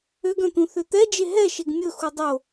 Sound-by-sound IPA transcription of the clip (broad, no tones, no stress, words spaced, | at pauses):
øɡœ̃t̪ũ θøt̪ɛd͡ʒe ɦɛ ʃeɡmʲɵxu dˤo